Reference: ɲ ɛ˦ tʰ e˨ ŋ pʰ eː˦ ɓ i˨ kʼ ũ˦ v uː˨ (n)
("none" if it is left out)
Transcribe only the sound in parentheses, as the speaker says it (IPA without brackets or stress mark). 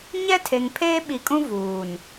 n